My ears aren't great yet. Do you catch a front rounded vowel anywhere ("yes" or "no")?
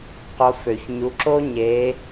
yes